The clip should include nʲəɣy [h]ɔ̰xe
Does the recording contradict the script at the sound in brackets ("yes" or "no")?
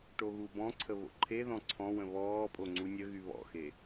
yes